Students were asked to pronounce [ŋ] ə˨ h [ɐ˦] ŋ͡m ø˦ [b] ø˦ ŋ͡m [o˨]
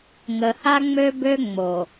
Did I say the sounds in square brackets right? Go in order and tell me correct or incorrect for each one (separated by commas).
correct, incorrect, correct, correct